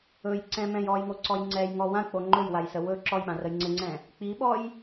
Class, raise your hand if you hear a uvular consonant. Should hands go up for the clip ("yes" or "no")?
no